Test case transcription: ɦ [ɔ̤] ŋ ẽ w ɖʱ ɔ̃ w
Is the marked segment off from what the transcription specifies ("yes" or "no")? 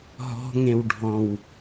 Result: no